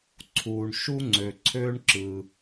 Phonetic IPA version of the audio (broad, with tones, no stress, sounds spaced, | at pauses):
ǀʰ uː˩ ɳ ʃ u˥ ŋ͡ǀ ø˩ ǀʰ øː˥ ɳ ǁ ɯ˩